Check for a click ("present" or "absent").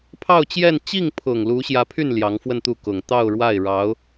absent